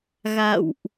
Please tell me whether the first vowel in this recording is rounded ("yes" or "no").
no